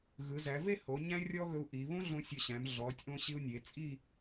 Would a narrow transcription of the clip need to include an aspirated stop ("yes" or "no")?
no